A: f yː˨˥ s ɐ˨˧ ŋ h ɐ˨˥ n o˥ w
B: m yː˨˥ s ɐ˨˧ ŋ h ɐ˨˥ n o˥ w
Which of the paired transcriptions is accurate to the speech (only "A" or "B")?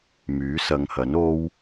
B